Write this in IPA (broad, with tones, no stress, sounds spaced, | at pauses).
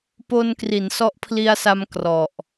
p o˧ n k r i˩˦ n s ɔ˦˥ ʔ pʰ l i˧ a̯ s a˧ m k r ɔ˨˩ ʔ